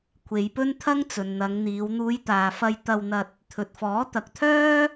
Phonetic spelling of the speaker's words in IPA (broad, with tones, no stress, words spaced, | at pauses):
kʷʰe˨˧jpɵ˥nt̪ʰɐ˥ŋ t͡sɵ˨nn̪ɐ˨˧ŋn̪iː˨˧w n̪uː˨˧jt̪aː˨ fɐ˧jt̪ɐ˧w n̪ɐ˧t̚ | t̪ʰɵ˨t̚fɔː˨˥ t̪ɐ˨k̚t̪ʰœː˥